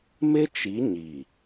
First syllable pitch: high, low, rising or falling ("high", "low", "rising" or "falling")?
high